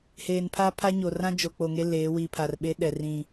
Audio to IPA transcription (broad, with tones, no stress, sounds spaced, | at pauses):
h eː˨ n pʰ aː˦ pʰ a˦ ɲ o˨ r ã˦ d͡ʒ o˨ k͡p o˨ ŋ e˦ l eː˨˦ w iː˨ pʰ a˨ r ɓ e˦ ɗ ɛ˨ r ĩ˨